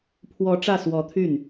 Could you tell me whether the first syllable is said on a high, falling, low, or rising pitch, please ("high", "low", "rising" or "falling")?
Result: rising